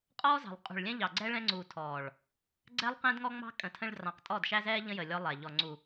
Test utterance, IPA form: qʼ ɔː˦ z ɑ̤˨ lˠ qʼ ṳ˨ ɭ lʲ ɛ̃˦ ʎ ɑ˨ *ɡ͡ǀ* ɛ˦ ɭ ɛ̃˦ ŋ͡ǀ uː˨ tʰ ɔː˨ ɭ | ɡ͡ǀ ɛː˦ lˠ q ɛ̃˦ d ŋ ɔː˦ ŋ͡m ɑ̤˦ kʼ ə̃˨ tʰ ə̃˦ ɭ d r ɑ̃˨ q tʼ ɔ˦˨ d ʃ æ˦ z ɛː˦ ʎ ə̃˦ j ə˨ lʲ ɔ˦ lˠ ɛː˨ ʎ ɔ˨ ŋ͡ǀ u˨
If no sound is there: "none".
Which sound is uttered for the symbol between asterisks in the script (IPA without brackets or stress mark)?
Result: ɡ͡ǀ